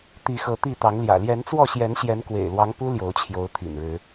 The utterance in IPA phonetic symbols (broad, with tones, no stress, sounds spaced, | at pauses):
t̪ i˨˦ x ɤ˨˦ t̪ i˥˨ t̪ ɑ˨˦ ŋ l j ä̰˨˩ l j ɛ˨˦ n t͡s w ɔ˥˨ ɕ j ɛ˨˦ n ɕ j ɛ˨˦ n k w ḛ˨˩ ɪ̯ l w ɑ˨˦ ŋ p u˦ l j o˨˦ ʊ̯ t͡ɕʰ j o˨˦ ʊ̯ t̪ʰ ḭ˨˩ n ɻ ɻ̩˨˦